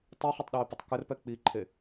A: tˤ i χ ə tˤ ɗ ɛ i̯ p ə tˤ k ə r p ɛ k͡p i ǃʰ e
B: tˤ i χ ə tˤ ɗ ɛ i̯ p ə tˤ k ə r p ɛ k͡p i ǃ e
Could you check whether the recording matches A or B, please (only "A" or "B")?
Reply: A